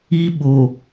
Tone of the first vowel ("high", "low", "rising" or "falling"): high